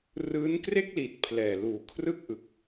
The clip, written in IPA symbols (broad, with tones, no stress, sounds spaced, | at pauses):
r ɯː˦˥ n k r e˥˩ k̚ l iː˨˩ t̚ pʰ l ɛː˨˩ l uː˨˩ kʰ r ɯ˥˩ k̚ ʔ ɯ˨˩ k̚